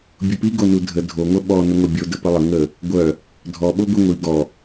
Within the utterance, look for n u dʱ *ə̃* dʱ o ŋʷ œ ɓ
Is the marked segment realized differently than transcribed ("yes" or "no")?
yes